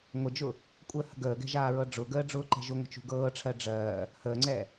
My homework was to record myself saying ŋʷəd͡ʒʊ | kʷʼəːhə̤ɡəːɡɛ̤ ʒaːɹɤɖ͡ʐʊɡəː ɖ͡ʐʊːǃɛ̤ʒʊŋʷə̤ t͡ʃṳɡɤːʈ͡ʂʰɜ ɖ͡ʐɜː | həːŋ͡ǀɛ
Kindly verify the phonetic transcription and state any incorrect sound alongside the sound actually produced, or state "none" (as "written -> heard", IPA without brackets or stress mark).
none